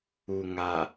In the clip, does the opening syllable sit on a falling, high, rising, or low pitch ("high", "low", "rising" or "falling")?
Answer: low